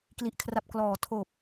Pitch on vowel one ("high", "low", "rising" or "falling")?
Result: low